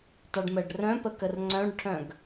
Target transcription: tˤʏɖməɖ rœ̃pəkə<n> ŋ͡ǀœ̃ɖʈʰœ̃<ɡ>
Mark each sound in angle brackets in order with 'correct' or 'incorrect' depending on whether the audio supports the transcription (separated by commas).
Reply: incorrect, correct